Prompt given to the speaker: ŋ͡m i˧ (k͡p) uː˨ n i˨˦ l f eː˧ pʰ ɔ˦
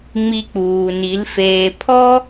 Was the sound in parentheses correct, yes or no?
yes